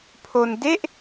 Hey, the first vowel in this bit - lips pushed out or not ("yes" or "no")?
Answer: yes